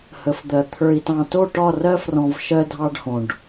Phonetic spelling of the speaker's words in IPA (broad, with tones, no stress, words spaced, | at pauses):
hə˨˦fd̪ɜ˨ t̪ʰə˞˨i̯tɑ̃˨ to˦˨ʈɒ˦˨ rɜ˦frɔ̃˨v ʃɜ˦dʱɑ˦ɖ hõ˨ɖ